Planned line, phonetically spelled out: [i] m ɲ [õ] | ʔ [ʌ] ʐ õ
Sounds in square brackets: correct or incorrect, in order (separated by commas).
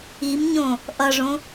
correct, correct, correct